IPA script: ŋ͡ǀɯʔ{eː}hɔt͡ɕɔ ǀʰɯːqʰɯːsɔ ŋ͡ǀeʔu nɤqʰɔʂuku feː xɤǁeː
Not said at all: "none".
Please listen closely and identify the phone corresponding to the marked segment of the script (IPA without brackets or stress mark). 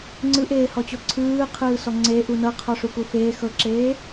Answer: eː